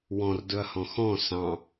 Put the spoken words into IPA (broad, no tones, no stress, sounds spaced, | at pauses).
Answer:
w ɔ̃ r d ɵ ɐ̯ h ɔ̃ x ɔ̃ s ɑ̃